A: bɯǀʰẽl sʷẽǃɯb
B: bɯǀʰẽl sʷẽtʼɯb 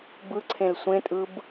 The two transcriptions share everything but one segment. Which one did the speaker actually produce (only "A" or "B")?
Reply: B